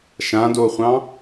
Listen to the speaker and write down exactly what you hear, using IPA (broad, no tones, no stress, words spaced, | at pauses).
ʃãdoχʷɑ̃